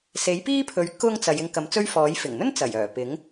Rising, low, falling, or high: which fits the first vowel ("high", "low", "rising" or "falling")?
rising